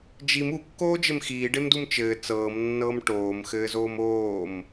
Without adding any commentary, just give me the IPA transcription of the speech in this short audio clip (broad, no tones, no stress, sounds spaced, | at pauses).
d͡ʒ i m u kː oː d͡ʒ ɘ m x iː ɖ e m d u m t͡ʃ ɘː t͡s ɤː m nː ɤː m ʈ oː m x ɘː z oː m oː m